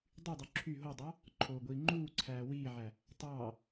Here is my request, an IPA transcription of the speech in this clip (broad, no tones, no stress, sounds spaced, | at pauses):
dˤ y dˤ u ǁʰ y ɦ o dˤ ɑ | ǃʰ oː ɡʷ iː ŋ͡ǃ uː ǀʰ æː w iː ʕ æ | tˤ ɑː